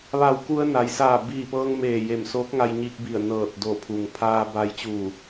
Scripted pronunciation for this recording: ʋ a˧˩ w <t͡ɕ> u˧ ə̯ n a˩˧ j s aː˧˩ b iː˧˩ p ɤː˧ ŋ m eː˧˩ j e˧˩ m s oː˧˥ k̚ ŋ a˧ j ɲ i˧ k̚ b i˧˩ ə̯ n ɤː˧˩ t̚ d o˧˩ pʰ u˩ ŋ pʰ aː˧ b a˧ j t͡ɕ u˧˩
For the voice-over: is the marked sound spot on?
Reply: no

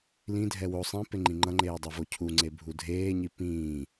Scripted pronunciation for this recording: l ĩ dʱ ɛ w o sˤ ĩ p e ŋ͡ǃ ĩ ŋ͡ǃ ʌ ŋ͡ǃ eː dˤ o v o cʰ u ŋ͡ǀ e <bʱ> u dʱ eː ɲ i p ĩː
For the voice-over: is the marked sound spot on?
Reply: yes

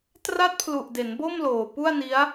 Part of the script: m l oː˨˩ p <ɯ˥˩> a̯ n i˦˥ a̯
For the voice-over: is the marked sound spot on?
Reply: no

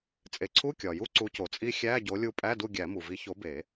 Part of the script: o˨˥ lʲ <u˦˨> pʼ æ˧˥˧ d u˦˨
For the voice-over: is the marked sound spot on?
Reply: yes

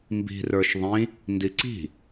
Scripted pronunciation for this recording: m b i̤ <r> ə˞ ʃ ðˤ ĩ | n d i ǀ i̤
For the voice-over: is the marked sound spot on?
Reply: yes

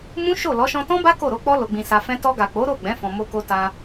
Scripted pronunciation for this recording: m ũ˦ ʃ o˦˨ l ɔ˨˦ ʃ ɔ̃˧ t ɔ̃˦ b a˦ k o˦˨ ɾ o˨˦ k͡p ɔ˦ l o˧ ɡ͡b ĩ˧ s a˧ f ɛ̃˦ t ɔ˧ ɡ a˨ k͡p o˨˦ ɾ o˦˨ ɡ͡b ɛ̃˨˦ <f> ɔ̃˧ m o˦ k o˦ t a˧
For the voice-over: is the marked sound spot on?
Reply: yes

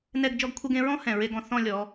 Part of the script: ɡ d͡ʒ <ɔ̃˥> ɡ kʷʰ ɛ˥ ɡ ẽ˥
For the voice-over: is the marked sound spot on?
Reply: no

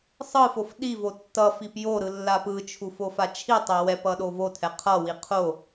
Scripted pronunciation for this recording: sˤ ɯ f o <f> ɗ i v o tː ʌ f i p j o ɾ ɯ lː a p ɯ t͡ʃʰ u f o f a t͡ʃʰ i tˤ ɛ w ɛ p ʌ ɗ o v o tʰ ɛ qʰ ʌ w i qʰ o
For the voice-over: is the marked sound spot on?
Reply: yes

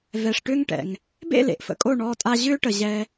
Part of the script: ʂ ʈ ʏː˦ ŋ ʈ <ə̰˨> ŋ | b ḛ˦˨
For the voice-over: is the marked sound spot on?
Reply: no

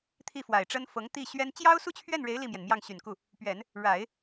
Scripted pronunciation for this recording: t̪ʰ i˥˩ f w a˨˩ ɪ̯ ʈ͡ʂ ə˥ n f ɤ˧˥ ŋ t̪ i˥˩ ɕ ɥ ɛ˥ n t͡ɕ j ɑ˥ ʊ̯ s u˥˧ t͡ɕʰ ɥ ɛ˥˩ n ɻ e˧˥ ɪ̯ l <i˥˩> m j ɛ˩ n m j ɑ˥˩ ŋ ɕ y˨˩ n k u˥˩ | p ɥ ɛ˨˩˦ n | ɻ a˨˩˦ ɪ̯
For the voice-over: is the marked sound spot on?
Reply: yes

